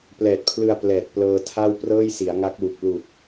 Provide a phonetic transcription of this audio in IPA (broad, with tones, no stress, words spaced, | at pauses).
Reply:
plɛː˨˩t̚pʰlɯ˧a̯ plɛː˨˩t̚ plɤː˧tʰa˥˩w prɤː˥˩jsi˩˦a̯ŋa˦˥k̚wu˨˩k̚ lu˨˩k̚